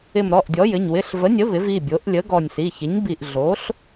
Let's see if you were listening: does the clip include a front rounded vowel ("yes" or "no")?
no